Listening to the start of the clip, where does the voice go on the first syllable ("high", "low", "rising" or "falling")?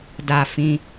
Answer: falling